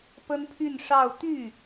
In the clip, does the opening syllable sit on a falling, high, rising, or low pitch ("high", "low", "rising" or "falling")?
high